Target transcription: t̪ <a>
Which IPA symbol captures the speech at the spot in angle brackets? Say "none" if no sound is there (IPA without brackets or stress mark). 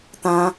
ã